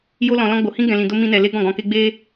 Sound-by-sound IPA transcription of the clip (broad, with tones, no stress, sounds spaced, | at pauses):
j o˦ l ɔ̃˧ l ɔ̃˦ ɡ͡b o˧ h ĩ˦ ɡ ɛ̃˧ l ĩ˧ d o˦ m ĩ˦ n ɛ˧ l e˦ ɡ ɔ̃˦˨ ɡ ɔ̃˧ k e˦ ɡ͡b e˦